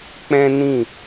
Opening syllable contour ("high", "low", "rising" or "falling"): high